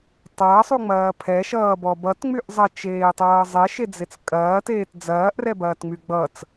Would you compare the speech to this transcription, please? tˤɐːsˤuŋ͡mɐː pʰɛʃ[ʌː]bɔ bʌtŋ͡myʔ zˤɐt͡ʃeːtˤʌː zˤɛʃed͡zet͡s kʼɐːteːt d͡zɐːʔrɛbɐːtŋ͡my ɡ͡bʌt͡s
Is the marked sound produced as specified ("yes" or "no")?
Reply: yes